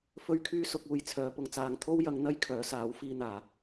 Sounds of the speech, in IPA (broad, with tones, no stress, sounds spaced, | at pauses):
f ɵ˧ ɥ kʰ yː˧ s ʊ˨ k̚ uː˧ j t͡sʰ œː˨˧ p ʊ˧ ŋ t͡s aː˨ ŋ t̪ʰ o˥ w j ɐ˧ ŋ n̪ ɐ˥ j kʰ œː˨˥ s aː˨˥ w f iː˧ n̪ aː˨˩